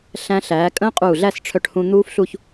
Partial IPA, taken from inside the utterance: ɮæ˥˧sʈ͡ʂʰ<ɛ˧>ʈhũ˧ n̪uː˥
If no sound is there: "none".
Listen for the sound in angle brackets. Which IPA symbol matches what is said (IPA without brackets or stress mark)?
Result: œ˧